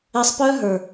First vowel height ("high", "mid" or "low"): mid